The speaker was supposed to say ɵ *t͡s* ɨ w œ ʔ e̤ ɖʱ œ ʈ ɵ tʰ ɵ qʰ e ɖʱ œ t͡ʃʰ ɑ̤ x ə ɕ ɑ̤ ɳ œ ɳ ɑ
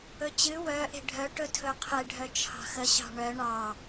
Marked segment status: incorrect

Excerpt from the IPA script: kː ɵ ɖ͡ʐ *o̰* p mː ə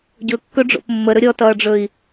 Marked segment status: correct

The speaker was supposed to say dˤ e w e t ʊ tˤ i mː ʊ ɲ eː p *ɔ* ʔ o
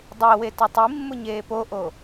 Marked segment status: incorrect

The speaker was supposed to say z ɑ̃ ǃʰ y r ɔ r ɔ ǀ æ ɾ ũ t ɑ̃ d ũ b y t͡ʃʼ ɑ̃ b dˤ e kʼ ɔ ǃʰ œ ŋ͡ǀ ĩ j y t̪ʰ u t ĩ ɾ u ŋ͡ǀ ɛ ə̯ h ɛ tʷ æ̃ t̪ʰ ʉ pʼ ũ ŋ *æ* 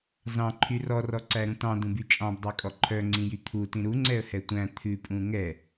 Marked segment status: incorrect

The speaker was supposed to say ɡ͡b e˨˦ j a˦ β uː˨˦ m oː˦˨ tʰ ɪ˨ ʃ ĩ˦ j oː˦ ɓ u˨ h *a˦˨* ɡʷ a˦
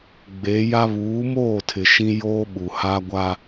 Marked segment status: incorrect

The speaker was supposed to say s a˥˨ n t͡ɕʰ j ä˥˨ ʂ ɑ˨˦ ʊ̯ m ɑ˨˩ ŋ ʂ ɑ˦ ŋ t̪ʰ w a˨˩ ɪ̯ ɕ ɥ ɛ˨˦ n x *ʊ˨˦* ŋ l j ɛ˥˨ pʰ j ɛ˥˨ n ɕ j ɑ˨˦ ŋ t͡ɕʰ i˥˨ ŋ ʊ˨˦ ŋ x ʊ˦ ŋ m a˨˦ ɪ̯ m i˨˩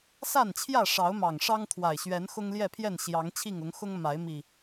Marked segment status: incorrect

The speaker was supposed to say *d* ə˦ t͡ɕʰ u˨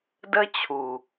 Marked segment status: correct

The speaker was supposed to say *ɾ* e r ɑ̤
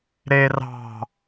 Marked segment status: correct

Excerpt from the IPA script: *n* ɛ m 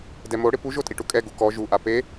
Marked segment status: incorrect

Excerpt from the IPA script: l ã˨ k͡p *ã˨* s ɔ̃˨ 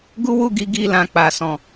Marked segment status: incorrect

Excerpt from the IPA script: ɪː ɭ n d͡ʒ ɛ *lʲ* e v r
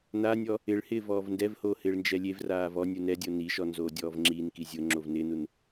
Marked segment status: correct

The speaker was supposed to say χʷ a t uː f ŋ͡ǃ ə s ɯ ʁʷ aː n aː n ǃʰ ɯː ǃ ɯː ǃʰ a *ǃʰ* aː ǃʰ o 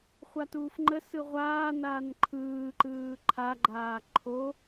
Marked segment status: incorrect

